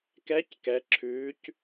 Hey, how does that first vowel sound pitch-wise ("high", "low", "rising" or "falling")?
rising